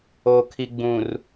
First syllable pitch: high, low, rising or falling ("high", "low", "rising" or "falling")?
low